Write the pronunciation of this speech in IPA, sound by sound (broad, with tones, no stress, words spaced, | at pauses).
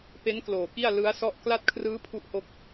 pe˦˥n kloː˨˩ki˥˩a̯ lɯ˦˥a̯sɔ˥˩ʔ kla˥˩t̚kʰrɯː˦˥ pʰu˥˩ʔho˥˩k̚